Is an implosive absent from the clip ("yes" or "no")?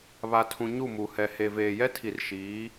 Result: yes